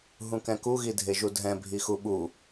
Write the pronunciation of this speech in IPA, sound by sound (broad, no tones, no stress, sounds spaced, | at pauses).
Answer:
ɦ ũ k ɛ̃ k u ɣ i dʱ e ʒ u dʱ ɛ̃ bʱ i x u ɓ u